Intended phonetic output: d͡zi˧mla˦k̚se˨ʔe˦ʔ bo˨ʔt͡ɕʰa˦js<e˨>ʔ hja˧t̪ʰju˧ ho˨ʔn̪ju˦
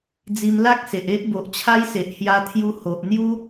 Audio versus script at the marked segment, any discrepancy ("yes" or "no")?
no